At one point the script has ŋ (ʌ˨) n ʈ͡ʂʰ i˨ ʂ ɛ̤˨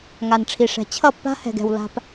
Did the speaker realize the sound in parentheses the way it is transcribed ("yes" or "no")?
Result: no